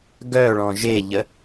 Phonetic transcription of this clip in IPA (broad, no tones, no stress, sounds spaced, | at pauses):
ɡ œ ɭ ɔ̃ ʒ e ʎ ə